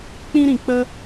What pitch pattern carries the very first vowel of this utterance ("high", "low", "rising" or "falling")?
high